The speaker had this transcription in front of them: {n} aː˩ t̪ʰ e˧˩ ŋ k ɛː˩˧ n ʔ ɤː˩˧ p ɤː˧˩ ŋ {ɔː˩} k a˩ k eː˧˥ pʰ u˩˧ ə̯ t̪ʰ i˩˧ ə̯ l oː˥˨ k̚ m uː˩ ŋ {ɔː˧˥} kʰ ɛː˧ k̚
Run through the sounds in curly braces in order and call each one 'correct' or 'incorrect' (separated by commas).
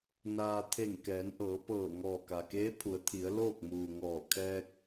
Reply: correct, incorrect, incorrect